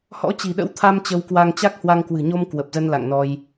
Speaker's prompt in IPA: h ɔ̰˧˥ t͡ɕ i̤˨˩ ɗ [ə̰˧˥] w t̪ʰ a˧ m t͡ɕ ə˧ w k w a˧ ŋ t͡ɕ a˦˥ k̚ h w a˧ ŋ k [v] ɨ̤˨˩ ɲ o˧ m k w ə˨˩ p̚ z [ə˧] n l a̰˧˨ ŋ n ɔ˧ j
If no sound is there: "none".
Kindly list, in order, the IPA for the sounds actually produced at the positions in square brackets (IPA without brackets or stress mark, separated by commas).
ə̰˧˥, w, ə˧